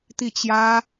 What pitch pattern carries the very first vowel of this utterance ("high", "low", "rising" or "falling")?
falling